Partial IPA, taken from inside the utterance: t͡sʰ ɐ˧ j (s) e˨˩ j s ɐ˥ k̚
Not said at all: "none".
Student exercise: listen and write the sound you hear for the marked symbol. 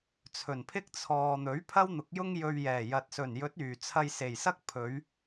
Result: s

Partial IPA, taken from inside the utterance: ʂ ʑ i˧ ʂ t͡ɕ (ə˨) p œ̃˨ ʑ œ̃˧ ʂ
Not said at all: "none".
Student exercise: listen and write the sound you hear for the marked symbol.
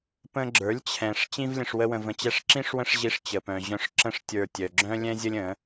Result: ə˨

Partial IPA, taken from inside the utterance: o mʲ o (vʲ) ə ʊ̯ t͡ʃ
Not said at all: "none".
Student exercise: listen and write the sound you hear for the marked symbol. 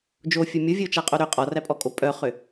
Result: vʲ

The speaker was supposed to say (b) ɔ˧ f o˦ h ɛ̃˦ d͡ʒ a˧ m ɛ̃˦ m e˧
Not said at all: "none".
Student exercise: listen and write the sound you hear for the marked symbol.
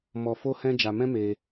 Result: m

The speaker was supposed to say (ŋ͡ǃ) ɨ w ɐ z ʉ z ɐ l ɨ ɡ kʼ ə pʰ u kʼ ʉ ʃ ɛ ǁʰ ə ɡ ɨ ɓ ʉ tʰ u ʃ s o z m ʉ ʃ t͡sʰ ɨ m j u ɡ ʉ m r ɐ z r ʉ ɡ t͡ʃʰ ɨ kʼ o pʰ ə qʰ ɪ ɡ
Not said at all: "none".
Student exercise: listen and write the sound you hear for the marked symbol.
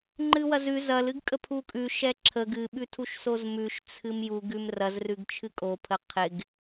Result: ŋ͡ǃ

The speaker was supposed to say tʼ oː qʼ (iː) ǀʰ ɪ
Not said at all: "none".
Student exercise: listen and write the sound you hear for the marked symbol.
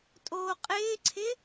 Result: ɪː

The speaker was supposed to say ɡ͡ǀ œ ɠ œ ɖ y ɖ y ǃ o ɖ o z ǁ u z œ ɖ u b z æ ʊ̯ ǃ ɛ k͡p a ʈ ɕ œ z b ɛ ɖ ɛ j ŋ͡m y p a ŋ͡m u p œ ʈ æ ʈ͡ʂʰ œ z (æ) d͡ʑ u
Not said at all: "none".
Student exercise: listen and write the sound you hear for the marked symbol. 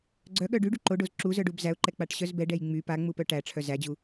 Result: æ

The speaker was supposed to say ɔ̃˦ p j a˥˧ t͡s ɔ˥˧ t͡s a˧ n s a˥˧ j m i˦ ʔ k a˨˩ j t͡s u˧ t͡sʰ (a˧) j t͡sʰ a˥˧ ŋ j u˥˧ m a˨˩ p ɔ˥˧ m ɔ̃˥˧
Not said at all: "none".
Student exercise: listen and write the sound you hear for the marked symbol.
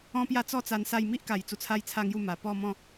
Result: a˦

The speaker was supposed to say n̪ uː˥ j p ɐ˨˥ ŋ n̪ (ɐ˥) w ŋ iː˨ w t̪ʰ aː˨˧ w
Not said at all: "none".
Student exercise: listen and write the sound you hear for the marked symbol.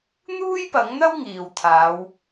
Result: ɐ˥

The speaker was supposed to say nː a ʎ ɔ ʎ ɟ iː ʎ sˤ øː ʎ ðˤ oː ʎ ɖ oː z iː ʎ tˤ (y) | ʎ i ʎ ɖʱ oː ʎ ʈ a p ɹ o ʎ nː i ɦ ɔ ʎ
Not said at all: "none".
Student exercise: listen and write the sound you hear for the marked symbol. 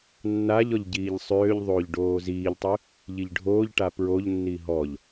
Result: y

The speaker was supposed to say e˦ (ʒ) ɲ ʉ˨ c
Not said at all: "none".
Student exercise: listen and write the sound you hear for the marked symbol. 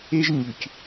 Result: ʒ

